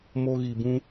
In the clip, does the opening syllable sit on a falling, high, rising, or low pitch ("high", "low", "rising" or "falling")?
high